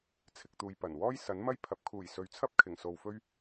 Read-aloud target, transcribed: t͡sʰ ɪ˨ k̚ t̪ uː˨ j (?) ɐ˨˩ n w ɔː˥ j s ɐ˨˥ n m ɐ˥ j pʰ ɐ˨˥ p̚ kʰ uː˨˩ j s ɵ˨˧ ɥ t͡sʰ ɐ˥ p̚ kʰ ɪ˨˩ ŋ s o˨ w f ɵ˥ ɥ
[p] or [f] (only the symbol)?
p